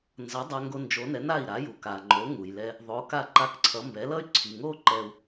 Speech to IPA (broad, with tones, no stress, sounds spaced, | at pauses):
n z ʌ˩˥ dˤ a˧ ŋ ɡ o˧ n d͡ʒ o˩˥ n ɛ˩˥ n a˥˩ i̯ ɾ a˩˥ j u˩ k a˩ ŋ͡ǃ o˩˥ ŋ u˩ j l ɛ˧ | ðˤ o˩˥ k a˥˩ ǃ a˧ k ǀʰ ʌ˩˥ m b ɛ˩˥ l ʌ˥ y̯ ǀʰ i˩ ŋ o˥ ǃ ɛ˧ u̯